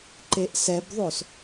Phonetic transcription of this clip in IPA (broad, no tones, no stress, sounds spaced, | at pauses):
ǃ e ʔ s ɛ b ðˤ o s